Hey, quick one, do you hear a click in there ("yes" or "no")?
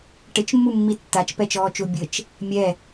no